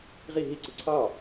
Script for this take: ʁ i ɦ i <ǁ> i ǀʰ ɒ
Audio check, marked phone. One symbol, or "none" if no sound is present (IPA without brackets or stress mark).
ǀ